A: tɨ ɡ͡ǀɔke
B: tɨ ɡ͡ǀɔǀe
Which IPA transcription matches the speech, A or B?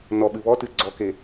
A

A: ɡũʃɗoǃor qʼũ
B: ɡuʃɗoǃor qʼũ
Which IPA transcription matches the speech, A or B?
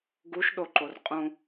B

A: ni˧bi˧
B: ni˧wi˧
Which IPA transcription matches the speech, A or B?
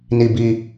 A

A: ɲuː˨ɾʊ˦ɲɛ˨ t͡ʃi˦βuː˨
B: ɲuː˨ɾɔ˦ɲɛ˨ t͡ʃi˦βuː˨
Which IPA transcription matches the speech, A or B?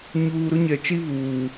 A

